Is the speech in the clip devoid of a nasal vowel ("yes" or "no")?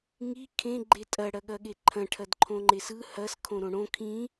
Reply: no